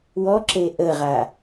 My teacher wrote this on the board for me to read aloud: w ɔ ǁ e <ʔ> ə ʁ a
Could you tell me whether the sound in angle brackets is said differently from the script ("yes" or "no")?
no